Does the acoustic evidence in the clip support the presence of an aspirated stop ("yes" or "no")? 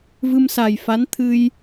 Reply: yes